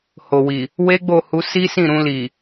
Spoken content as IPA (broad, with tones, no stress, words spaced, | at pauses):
ho˨wi˨ | we˦ɡ͡bo˦˨hu˧ si˦sĩ˦˨ɾũ˧li˨